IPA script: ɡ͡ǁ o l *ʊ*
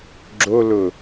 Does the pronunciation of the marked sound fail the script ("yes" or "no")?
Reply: no